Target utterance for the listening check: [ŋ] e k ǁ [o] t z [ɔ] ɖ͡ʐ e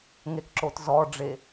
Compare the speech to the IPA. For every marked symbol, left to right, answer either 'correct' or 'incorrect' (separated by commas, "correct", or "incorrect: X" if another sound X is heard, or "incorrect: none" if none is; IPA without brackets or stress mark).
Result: correct, correct, correct